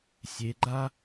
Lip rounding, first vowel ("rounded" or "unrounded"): unrounded